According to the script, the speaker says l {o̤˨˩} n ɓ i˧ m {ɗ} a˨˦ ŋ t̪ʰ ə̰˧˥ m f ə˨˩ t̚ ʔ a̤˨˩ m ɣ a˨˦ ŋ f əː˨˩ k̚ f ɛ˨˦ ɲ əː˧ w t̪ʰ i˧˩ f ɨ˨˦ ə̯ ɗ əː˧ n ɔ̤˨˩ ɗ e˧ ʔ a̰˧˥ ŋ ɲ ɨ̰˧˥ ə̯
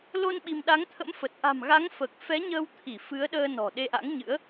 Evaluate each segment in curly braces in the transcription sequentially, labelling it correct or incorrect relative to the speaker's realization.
incorrect: o˧, correct

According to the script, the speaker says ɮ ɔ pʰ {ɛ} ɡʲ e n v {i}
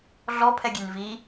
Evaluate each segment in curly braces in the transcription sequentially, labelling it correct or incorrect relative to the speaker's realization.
correct, correct

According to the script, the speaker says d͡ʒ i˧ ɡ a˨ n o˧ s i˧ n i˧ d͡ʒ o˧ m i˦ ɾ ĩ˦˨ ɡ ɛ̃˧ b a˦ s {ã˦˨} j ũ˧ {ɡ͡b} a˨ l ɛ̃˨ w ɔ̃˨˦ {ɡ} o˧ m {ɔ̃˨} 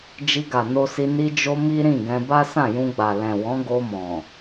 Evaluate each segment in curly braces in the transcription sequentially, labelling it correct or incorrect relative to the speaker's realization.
correct, correct, correct, correct

